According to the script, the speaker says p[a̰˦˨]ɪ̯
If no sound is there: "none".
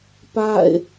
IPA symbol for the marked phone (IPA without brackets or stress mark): a̰˦˨